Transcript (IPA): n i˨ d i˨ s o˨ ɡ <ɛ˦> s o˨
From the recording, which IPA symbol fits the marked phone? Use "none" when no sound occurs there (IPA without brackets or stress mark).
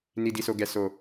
ɛ˨